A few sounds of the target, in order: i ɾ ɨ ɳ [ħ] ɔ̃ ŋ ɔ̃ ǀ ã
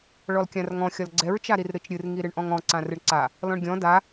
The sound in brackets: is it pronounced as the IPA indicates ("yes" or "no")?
no